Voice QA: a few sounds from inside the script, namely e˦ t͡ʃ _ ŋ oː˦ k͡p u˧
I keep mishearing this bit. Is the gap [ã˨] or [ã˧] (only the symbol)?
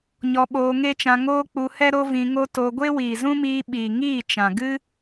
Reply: ã˧